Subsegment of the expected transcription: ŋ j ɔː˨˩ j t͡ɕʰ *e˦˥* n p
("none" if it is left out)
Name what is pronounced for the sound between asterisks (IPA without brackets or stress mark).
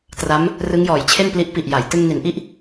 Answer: e˥˩